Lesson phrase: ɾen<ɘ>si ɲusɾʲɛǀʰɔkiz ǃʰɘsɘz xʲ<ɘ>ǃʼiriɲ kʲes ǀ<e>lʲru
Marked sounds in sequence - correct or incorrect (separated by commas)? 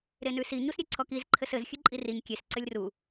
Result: incorrect, incorrect, incorrect